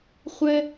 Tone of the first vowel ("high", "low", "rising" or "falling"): high